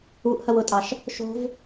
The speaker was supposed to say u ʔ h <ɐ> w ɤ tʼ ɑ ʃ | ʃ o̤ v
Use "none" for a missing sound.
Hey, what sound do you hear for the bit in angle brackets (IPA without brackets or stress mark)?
ɐ